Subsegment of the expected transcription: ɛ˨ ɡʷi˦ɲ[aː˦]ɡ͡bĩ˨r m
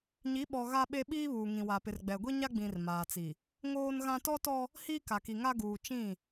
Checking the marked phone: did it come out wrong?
yes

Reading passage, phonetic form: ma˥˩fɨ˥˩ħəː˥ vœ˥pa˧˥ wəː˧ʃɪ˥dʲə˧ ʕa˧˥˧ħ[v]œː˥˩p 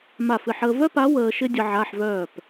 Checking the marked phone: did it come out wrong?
no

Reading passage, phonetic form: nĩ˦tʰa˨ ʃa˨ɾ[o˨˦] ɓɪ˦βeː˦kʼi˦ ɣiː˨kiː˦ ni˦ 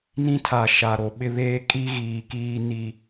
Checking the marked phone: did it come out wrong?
yes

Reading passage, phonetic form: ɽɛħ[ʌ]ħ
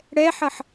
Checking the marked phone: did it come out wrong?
no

